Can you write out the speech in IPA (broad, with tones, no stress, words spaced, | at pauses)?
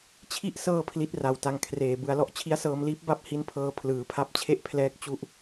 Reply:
t͡ɕʰi˥˩ʔ sɤː˥˩pʰli˦˥t̚ra˨˩wta˧ŋ kʰreː˨˩ bɯ˧a̯lɔ˥˩ʔ t͡ɕʰi˦˥a̯sɤː˧mliː˦˥p̚ ba˥˩p̚hi˦˥npʰɤː˧ pʰlɯː˩˦pʰa˦˥p̚t͡ɕʰe˥˩ʔpʰlɛː˦˥k̚ t͡ɕu˥˩ʔ